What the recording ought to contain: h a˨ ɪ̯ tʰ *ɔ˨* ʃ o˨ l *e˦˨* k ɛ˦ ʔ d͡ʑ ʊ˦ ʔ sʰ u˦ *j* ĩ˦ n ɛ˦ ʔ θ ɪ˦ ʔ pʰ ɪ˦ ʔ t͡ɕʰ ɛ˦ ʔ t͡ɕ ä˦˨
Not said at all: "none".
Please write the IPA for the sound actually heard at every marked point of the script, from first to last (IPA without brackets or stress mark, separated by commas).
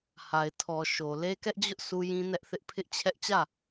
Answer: ɔ˨, e˦, j